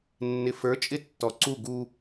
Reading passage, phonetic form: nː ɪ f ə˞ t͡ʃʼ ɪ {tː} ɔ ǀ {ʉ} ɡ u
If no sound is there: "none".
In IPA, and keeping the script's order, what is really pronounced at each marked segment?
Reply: tː, u

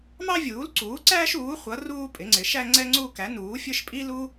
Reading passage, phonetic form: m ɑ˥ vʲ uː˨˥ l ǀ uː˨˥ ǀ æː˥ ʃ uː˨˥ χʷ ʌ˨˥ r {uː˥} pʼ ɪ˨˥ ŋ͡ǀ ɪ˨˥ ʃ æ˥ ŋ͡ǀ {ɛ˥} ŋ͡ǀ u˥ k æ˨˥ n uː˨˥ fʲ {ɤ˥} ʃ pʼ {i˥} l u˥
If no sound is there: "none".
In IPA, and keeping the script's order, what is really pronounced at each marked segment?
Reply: uː˥, ɛ˥, ə˞˥, i˥

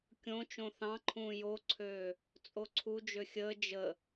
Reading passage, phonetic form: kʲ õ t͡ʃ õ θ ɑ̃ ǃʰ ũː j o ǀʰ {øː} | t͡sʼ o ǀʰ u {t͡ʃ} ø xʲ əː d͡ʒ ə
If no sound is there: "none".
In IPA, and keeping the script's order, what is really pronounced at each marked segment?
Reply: øː, d͡ʒ

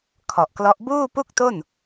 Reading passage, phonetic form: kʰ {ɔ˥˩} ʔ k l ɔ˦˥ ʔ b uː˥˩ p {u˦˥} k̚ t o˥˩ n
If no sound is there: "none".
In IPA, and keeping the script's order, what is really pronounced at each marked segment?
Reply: ɔ˨˩, u˥˩

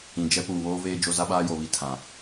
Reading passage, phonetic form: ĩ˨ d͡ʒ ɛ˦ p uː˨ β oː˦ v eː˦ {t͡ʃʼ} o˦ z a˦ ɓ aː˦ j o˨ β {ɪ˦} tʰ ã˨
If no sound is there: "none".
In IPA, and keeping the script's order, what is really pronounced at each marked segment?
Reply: d͡ʒ, i˦

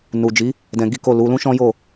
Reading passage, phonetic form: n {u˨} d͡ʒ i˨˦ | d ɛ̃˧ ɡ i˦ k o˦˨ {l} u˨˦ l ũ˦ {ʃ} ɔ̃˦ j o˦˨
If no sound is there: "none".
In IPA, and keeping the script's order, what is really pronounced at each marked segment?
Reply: u˨, l, ʃ

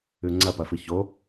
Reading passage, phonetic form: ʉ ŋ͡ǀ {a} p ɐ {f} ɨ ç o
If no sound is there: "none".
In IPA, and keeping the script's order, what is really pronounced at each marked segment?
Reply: ɐ, f

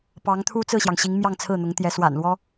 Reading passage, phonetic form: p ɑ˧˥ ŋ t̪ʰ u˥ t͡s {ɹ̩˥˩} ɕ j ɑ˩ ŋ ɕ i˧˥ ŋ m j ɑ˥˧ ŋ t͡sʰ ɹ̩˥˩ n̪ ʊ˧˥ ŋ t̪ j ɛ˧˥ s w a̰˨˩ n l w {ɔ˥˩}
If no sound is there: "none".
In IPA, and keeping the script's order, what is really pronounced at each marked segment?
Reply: ɹ̩˥˩, ɔ˥

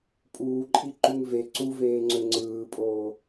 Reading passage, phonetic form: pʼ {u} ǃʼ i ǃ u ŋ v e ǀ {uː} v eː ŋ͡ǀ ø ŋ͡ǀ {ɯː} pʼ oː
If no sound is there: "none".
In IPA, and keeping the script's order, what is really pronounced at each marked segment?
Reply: uː, u, ɯː

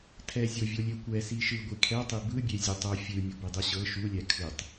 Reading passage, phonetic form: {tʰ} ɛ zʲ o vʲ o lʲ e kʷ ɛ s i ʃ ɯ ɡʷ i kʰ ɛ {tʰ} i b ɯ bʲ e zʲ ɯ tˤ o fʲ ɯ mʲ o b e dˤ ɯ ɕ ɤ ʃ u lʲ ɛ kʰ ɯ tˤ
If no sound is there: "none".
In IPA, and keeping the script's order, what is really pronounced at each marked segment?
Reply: tʰ, tˤ

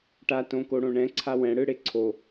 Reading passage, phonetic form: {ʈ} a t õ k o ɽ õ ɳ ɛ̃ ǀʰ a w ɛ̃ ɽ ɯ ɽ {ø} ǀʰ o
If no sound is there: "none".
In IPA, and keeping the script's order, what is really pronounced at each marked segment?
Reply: ʈ, e

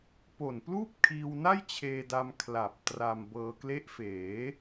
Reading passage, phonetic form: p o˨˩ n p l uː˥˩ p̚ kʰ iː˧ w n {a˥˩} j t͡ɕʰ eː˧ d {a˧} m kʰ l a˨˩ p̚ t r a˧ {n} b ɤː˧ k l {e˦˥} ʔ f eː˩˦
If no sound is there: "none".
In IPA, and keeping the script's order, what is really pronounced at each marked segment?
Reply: a˥˩, a˧, m, e˦˥

